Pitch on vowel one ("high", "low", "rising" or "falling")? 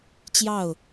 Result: falling